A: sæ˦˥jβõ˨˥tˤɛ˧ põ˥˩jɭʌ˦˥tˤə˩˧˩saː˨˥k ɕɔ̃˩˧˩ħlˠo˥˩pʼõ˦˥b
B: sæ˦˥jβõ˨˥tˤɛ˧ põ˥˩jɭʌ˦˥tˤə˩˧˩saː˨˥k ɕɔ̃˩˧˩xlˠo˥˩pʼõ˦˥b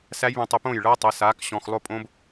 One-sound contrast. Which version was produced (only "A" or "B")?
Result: B